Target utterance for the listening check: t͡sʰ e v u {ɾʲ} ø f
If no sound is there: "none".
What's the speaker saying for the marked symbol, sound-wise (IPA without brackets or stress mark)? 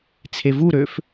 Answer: ɾ